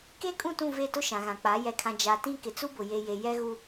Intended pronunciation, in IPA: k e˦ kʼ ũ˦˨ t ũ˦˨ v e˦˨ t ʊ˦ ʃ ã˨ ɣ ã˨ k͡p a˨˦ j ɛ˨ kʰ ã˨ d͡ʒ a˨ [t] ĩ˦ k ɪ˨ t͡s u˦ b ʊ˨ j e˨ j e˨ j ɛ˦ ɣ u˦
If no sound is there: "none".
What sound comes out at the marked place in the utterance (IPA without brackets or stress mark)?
t